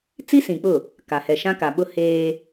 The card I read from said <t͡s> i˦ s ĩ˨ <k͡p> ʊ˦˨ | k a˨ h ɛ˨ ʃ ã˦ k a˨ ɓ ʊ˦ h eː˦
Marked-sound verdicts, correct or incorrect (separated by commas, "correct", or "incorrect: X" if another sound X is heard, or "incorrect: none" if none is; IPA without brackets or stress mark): correct, correct